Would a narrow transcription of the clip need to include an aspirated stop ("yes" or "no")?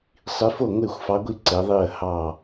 no